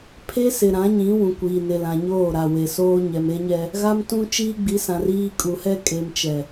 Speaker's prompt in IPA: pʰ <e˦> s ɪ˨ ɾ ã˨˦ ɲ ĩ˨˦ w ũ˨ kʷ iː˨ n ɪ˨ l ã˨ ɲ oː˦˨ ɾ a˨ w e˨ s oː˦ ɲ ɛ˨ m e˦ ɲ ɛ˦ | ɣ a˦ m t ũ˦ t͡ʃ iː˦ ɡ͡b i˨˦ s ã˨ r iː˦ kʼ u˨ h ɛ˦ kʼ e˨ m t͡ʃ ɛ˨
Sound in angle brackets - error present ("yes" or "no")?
no